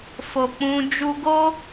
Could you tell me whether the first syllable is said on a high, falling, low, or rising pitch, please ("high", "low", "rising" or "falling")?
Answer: low